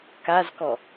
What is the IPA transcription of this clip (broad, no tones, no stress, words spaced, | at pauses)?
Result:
kazkɔ